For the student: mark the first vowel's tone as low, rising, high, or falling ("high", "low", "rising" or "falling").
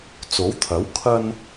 rising